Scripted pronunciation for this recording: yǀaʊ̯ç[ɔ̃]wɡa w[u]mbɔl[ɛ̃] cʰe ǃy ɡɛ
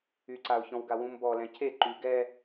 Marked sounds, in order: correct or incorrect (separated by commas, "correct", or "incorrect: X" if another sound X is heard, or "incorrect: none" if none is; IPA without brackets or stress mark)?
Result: correct, incorrect: ũ, correct